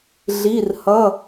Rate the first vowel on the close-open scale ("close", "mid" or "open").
close